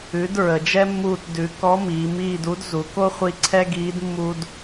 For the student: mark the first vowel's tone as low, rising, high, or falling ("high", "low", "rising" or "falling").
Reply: rising